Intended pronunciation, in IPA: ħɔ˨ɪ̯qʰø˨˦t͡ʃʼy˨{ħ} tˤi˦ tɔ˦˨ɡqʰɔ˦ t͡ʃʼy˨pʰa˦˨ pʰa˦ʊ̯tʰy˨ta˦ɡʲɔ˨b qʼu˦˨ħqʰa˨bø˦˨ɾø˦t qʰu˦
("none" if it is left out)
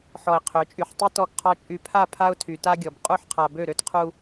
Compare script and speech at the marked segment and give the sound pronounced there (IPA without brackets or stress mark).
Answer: ħ